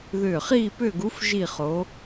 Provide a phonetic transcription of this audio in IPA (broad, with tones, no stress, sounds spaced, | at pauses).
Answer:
ð ʏː˧˩ χ iː˥˧ p ʏː˥˧ ɡ u˧˥ f ʒ i˥˧ χ o˧˥